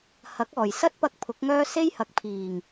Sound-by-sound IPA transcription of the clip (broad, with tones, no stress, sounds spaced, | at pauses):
h ɐ˨˥ k̚ ɔː˨˩ j s ɐ˥ t̚ p ɐ˧ k̚ pʰ ʊ˨˥ k̚ ŋ œː˥ s e˥ j h ɐ˨˥ k̚ pʰ iː˨˩ ŋ